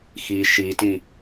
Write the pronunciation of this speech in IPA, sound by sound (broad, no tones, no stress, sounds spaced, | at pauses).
x i ʃ i t ĩ